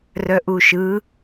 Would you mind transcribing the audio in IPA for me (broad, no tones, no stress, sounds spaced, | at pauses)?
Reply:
r œ ʔ u ʃ ɯ